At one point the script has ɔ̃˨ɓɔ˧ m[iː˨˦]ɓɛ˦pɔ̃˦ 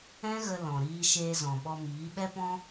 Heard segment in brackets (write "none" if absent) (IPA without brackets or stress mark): iː˨˦